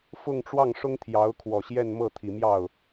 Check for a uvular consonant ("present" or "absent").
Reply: absent